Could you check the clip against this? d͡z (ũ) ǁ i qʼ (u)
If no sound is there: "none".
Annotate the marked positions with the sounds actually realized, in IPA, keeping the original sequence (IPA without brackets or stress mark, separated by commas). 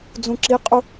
ũ, u